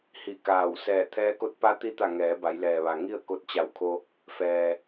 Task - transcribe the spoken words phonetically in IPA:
hi˧˩kaː˧˩w sɛː˧˩t̪ʰɛː˧˥ko˧˥t̚ pa˧˥t̪i˧t̪a˧˩ ŋɛː˩˧ba˩˧jlɛː˩ʋa˩ ŋi˥˨ə̯ko˧t̚t͡ɕa˧˩wkʰo˧ | fɛː˩

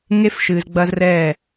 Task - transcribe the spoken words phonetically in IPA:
ŋe˦fʃɨː˨zɡ͡bɐː˦zrɛː˦˨

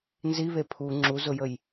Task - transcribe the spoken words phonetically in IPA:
nziβe pʰu ŋ͡ǁuzʊjəj

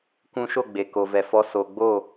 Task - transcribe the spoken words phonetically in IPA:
kʷũ˧ʃo˦˨ ɡ͡be˨ko˨vɛ˨fɔ˧ so˨ɡ͡bo˦˨

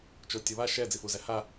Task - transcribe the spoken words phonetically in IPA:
t͡ʃotʲʌβa ʃɛ d͡zifuzæha

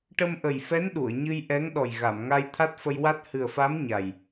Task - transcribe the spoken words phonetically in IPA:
ʈə˧mʔə˨˩jfɛ˧˥n ɗu˨˩˨ə̯ɲɨ˧jʔɛ˧˥ŋ ɗɔ˨˩jɣa˨˩˨m ŋa˧jt̪ʰa˦˥t̚fə˧jwa˦˥t̚ hɨ˨˩ə̯fa˧˥m ɲa˨˩j

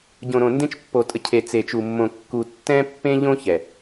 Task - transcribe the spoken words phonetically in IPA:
ɟõ˨ɾõ˨ndẽ˦t͡ʃ pːo˨tʼə˨ cʰe˨t͡se˨t͡ʃu˨mːõ˨ kːu˨ tːɛ̃˦pːẽ˦ʎõ˦ çɛ˨

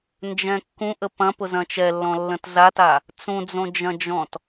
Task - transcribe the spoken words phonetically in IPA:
nd͡ʒɛ̃kːũ ʔəpɐ̃ pʊzɐ̃t͡ʃɛlːɔ̃ lːə̃tzata | t͡sũd͡zõd͡ʒɐ̃d͡ʒɔ̃t

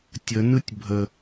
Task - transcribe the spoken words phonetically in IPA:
tʲənɯtʲ bʱə

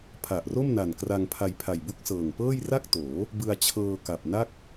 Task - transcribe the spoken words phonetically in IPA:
pʰa˨˩ʔro˥˩mna˨˩n kra˧ŋpʰa˧jpʰa˨˩j bu˦˥k̚sɤː˨˩ŋpɤː˥˩j ra˥˩k̚toː˩˦ | bɯ˧a̯t͡ɕʰɤː˧ka˨˩p̚na˥˩k̚

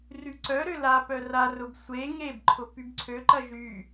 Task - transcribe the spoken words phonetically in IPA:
ryǀœɾø lapœ rarʊb sʷe ŋebǃʰʊ pybǀʰøǃɐ ʒy

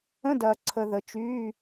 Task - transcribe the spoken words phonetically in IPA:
ə̃˧˥˧dɐː˨ǀʰə˨ ðə˨ t͡ʃyː˧˥˧

